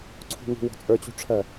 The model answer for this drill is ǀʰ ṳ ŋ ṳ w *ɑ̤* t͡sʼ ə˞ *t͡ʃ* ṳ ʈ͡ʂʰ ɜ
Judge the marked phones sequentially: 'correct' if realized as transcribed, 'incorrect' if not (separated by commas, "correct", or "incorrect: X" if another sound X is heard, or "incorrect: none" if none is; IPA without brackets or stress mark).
incorrect: ɔ̤, incorrect: t͡ɕ